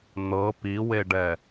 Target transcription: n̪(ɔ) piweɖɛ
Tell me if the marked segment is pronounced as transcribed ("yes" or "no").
no